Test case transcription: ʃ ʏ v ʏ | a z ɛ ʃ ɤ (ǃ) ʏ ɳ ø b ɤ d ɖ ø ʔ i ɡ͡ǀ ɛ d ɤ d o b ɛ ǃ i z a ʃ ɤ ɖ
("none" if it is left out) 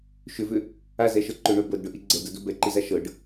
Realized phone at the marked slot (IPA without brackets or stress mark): ǃ